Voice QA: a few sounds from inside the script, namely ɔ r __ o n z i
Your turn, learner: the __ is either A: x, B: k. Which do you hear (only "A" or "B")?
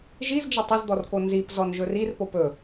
B